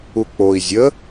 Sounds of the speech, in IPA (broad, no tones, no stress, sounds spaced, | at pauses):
u k͡p o i̯ zʲ ə